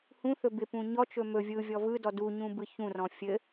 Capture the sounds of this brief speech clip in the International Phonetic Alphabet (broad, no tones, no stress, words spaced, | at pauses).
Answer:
hũθɵ bɪpũ ɲɔt͡ʃɵ mɵ vʲɯvʲɔ vɯdɔ duɲũ bɯçũrɔ̃ fʲɘ